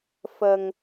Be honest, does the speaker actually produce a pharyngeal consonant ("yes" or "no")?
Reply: no